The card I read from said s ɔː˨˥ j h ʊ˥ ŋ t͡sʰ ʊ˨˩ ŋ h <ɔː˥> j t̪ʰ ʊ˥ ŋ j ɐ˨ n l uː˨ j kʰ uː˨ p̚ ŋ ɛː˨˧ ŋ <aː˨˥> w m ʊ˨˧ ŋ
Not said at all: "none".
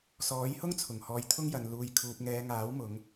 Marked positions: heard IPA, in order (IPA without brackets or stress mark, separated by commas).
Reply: ɔː˨˧, aː˨˥